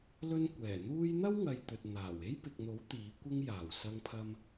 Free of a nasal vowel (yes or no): yes